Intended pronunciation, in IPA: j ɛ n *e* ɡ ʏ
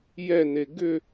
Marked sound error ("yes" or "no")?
no